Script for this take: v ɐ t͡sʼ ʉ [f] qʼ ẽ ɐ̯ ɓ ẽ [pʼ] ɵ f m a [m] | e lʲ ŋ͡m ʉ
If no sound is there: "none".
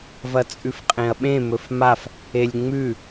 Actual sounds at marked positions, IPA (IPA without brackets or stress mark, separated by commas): f, m, f